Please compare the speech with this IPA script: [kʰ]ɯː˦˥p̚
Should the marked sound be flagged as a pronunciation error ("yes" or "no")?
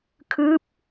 no